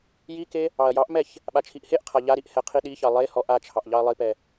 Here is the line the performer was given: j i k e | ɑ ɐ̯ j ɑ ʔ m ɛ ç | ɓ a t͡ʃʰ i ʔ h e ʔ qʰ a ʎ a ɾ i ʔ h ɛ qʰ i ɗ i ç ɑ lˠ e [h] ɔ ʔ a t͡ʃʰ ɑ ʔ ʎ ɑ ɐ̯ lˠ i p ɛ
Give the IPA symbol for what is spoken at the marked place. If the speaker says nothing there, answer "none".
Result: h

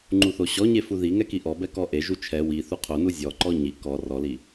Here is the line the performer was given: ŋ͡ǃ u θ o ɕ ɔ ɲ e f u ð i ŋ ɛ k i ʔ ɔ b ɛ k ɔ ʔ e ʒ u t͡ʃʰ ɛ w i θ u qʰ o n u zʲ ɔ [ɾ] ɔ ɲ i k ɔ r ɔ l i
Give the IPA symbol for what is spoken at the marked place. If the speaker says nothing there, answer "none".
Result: ǃ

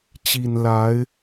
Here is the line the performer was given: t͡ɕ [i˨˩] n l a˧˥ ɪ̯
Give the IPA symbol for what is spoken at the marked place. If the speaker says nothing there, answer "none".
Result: i˨˩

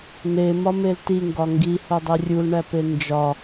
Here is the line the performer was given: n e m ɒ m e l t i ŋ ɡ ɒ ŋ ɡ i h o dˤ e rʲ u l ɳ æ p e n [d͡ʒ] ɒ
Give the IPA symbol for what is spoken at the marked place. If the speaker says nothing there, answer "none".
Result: d͡ʒ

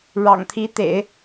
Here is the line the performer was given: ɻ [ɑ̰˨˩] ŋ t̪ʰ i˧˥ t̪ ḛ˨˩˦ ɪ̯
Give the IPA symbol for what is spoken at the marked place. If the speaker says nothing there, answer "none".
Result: ɑ̰˨˩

